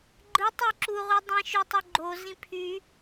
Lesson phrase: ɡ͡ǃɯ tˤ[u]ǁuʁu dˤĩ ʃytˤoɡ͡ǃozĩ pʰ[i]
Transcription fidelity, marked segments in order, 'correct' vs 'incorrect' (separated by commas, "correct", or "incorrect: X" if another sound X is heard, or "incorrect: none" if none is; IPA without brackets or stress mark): incorrect: o, incorrect: y